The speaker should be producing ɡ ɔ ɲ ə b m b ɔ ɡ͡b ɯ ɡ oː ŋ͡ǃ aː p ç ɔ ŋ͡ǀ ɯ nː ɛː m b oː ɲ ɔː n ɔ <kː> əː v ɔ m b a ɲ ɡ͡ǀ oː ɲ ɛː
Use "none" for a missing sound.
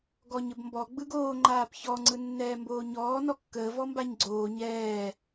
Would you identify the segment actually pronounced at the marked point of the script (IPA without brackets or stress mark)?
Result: kː